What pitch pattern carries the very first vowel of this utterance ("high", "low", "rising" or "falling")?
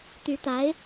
rising